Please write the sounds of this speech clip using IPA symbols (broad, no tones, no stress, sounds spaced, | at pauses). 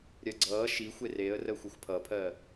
ɾʲ ɜ ɡ͡ǀ ʌː ʃ i xʷ e r e ə̯ r əː xʷ e xʷ pʰ ʌ pʰ ɜ